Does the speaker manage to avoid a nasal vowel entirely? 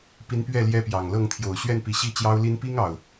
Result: yes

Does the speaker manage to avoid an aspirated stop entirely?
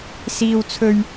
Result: no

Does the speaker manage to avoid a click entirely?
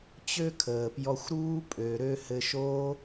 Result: yes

